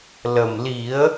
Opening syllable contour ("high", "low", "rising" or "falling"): low